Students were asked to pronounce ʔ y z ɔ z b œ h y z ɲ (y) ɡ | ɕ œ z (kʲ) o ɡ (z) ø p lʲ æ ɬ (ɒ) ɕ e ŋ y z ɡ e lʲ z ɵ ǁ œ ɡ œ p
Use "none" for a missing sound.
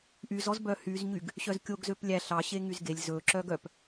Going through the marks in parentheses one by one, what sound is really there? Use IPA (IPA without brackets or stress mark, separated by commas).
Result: y, kʲ, z, ɑ